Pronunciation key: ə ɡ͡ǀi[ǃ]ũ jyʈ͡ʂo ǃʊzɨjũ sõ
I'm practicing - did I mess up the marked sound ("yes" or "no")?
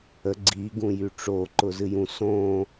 yes